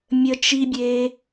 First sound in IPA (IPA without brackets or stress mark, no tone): mʲ